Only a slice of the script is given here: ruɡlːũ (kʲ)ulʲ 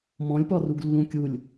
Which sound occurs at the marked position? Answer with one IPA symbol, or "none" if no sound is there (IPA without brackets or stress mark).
kʲ